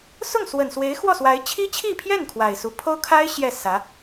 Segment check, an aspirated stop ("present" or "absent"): present